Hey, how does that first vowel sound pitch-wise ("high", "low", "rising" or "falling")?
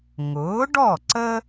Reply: rising